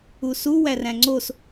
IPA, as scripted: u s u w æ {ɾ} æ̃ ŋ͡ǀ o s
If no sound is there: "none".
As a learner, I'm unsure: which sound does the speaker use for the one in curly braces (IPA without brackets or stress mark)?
r